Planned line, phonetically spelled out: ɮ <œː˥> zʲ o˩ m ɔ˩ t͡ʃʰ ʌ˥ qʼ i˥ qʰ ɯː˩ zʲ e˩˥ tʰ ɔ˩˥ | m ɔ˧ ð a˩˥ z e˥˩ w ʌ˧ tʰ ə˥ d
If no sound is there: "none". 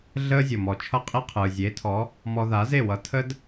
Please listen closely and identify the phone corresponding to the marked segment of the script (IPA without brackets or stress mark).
əː˥